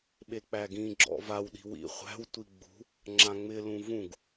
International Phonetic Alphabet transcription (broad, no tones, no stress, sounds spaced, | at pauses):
ɓ e k͡p æ ɡ ĩ ɡ͡ǁ ɔ̰ v a w ɗ i̤ w ḭ χʷ æ̤ w tʷ i ɡ͡b ṳ | ŋ͡ǁ ã ŋ͡m ɪ l ũ v ũ ɡ